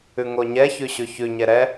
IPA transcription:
ʉ ŋ o ɲ ɛ ç ʉ ɕ ʉ ç ʉ ɲ ɛ ɾ ɛ

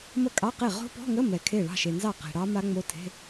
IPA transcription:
m ə˥˩ kʼ ɑ˧˥˧ q e˥˩ ʁ o̤˦˥ p ɔ̤˧˥˧ ŋ ə˧˥˧ m ɛ˨ kʰ e˥˩ ɭ ɑ̤˥˩ ʃ e˨ n z ɑ˥˩ q e̤˨ ɽ ɑ˦˥ m a˦˥ ŋ͡m o˧˥˧ tʰ e̤˧˥˧

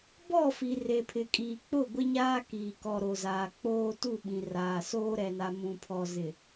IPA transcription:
b ɔ˦˨ f i˨ r e˨ pʰ ɪ˨ kʼ iː˨ k͡p ʊ˦˨ ɡʷ ɪ˦ ɲ aː˦ k iː˨ k ɔ˨ ɾ o˨ z aː˨ k͡p oː˦ t u˦˨ ɓ ĩ˨ r aː˨ s oː˦ ɾ ɛ˨ n a˨ m ũ˨ pʰ ɔ˨ z ɪ˨

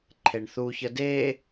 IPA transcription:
ǃʰ e ɳ θ u ç ə d e

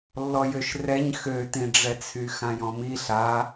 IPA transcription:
lː ɔ j ø ʃ r ɛ ɲ x ø t ĩ ɖ͡ʐ ɛ t͡sʰ y x ã j ɔ̃ m i ɬ a

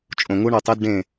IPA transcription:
t͡ʃʼ õ˨ ŋ u˦ ɳ o˨ tˤ e˦ d ɖ ẽ˦˨

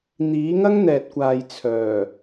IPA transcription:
n̪ iː˨˥ ŋ ɐ˥ ŋ n̪ ɛː˨ t̚ kʷ aː˨ j t͡sʰ œː˨˩

